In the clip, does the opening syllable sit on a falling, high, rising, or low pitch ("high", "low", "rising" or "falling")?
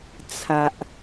low